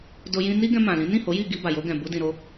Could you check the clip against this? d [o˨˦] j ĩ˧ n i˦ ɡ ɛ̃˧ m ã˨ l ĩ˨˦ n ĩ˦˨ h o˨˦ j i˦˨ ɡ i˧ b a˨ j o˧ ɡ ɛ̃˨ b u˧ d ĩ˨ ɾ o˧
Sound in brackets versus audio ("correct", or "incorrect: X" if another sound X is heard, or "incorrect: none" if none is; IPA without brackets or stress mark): incorrect: o˧